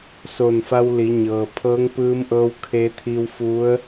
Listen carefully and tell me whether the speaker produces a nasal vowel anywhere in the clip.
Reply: no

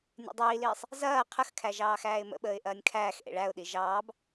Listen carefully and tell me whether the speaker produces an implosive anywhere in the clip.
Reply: yes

